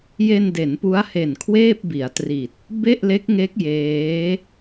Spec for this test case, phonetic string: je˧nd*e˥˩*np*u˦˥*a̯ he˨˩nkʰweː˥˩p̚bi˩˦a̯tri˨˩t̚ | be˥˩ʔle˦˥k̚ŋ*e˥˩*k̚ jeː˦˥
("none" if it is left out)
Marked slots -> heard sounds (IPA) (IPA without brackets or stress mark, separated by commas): e˩˦, u˦˥, e˦˥